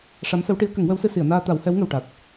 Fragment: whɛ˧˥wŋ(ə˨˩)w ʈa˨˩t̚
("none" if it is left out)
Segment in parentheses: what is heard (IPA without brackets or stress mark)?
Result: ə˨˩